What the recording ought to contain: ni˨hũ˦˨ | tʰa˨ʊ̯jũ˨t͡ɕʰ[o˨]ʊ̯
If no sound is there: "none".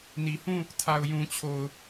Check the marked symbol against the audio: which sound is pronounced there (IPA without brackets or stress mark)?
o˨